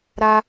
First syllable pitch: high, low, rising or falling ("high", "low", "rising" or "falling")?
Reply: high